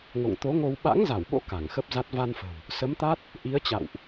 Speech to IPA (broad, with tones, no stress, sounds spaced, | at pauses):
ŋ o̰˧˨ ŋ t̪ o˨˦ ŋ o˧ w ɓ a̰˧˥ ŋ z a˧˩ w ɓ o̰˧˥ k a˧˩ ŋ x ə˦˥ p̚ z a˦˥ t̚ v a˧ n f ə̤˨˩ w | s ə˨˦ m t̪ a˦˥ t̚ | ʔ i˨˦ ə̯ t͡ɕ a̰˧˨ w ʔ